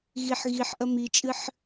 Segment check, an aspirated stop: absent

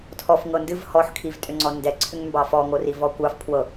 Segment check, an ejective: present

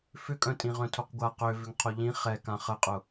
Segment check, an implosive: absent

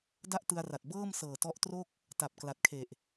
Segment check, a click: absent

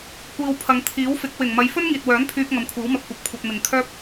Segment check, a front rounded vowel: present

